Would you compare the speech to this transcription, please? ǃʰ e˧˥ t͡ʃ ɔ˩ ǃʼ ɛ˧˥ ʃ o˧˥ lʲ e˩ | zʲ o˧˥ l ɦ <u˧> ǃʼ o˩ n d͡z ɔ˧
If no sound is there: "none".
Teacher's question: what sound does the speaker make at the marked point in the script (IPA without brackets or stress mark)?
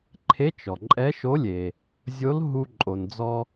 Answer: u˧